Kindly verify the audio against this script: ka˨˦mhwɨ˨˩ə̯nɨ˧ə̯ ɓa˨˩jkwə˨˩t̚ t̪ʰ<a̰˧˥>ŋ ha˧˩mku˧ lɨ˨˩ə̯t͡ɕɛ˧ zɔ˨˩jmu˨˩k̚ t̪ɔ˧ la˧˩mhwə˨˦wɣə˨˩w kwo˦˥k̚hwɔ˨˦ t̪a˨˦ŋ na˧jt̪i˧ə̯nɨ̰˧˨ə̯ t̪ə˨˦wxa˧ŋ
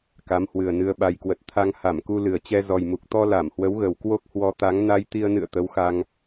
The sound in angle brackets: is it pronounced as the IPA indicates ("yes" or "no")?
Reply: no